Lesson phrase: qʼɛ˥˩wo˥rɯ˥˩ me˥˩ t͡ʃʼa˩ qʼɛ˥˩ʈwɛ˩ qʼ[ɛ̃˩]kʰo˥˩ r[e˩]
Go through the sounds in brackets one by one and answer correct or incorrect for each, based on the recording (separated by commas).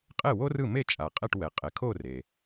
incorrect, correct